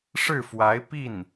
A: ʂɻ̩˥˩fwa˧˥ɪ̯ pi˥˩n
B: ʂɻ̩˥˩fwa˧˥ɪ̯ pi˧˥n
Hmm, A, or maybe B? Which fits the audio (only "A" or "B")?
A